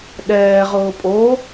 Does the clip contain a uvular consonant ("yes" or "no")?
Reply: yes